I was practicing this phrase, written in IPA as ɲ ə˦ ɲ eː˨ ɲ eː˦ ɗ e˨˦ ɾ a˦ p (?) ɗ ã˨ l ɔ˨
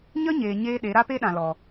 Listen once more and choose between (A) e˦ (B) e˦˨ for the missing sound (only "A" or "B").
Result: A